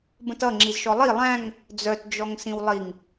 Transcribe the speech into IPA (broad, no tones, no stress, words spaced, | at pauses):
bə̃tʌŋ͡ǁizʃɔ lˠi lˠæ̃ŋ | d͡zœtd͡ʒɔŋsĩw lˠiŋ